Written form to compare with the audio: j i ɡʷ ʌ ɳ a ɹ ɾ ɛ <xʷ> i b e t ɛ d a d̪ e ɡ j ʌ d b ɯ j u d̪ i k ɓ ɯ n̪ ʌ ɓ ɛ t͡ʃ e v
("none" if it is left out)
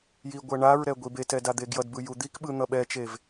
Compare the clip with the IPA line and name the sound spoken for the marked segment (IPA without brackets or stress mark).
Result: ɡʷ